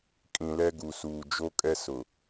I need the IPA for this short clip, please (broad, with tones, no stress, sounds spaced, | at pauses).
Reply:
kʼ ĩ˨ l ɛ˦ ɡ u˨ s uː˨ d͡ʒ o˦ kʼ ɛ˦ s ʊ˨